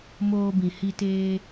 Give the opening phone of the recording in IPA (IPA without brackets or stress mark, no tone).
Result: m